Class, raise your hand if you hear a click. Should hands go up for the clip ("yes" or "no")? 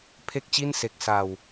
no